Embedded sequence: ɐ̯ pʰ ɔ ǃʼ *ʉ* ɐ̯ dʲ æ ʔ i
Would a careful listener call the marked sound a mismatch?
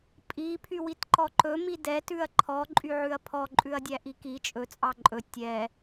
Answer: no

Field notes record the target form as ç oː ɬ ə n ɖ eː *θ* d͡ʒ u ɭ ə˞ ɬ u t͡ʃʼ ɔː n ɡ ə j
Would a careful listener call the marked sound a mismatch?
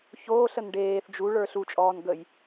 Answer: no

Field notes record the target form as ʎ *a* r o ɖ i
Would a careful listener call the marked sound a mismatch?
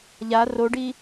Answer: no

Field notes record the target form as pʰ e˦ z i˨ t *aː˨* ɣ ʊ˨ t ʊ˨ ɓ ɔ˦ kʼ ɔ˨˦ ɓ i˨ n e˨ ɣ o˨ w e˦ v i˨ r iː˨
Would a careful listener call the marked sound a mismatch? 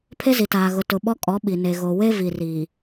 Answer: no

